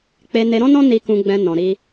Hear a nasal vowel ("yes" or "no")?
yes